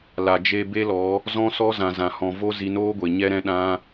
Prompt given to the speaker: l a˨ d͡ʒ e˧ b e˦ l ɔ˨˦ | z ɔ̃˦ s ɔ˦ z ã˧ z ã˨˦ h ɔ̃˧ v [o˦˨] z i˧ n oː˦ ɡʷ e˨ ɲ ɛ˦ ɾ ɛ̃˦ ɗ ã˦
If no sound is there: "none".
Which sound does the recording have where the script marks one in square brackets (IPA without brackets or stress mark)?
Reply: o˦